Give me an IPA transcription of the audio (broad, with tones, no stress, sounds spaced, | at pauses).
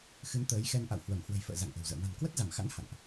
x ɨ˨˦ n t̪ əː˨˦ j x ɛ˧ n ʔ a̰˧˨ w h w ə˧˩ m h w ə̤˨˩ j f ə̰ː˧˨ z a̰˧˨ ŋ ʔ ə̤˨˩ w z ə̰ː˧˨ m a̤˨˩ n k w ə˦˥ t̚ z a˧˩ m x a̰˧˥ n h a̰˧˨ n ʔ